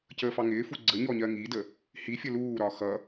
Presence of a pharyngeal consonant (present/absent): absent